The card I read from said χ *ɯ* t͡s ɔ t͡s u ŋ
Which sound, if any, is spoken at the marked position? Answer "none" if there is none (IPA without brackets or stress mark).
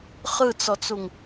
ɯ